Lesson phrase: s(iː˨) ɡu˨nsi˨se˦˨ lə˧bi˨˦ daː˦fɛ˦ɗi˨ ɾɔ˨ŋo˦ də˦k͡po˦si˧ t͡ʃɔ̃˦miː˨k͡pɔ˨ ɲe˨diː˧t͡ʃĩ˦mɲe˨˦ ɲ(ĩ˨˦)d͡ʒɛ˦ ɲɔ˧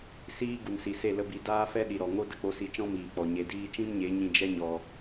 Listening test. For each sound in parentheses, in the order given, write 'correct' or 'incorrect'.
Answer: incorrect: iː˦, incorrect: ĩ˧

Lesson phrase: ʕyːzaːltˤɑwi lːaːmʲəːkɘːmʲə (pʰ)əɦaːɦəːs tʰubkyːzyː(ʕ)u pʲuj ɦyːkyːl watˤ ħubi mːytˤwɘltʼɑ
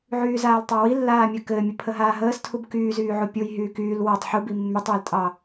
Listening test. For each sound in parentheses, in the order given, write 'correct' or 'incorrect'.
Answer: correct, correct

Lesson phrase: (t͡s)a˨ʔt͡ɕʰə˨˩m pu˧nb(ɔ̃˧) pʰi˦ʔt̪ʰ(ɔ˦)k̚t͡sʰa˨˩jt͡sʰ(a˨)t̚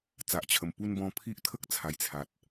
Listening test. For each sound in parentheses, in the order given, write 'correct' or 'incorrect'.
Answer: correct, correct, incorrect: ə˦, correct

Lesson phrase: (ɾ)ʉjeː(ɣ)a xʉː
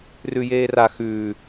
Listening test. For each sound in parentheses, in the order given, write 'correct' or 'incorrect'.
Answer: incorrect: r, incorrect: r

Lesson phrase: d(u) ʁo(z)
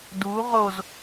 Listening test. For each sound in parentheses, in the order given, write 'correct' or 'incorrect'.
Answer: correct, correct

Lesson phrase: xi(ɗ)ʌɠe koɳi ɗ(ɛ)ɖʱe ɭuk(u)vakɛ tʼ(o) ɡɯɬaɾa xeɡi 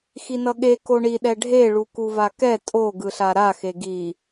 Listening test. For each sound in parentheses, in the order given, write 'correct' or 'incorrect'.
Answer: incorrect: n, correct, correct, correct

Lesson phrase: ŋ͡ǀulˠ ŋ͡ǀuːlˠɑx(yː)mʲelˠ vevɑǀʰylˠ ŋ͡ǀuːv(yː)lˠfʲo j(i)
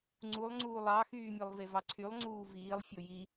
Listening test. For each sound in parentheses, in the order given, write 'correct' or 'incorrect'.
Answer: correct, incorrect: iː, correct

